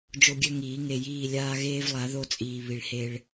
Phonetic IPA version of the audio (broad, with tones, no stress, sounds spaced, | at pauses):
d͡ʒ o˦ ɡʲ ø˦ ŋ iː˨˦ ŋ e˨ j iː˦˨ lʲ aː˦ ɣ eː˦ v lˠ a˨˦ ð o˦ t͡sʼ iː˨ β i˨ ɭ h e˦ ɭ